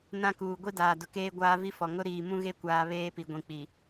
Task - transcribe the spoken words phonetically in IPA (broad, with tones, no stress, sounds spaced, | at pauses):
n ã˦ k uː˨ ɡʷ i˦ d aː˨ d ʊ˨ k eː˦ ɡʷ aː˦ v i˦ f ɔ˨ ŋ ʊ˦ ɾ iː˨ m ũ˦ ɣ e˦ kʷ aː˨ β eː˦ p i˨ ɡʷ ĩ˨ k͡p i˨